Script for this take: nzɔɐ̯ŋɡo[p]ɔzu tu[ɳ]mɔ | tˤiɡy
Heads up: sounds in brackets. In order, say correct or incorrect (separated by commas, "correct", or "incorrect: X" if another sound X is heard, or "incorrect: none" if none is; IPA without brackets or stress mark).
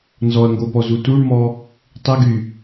correct, correct